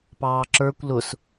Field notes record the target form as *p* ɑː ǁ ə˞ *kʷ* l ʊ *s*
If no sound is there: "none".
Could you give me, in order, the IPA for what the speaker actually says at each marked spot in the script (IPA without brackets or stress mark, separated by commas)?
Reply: p, kʷ, s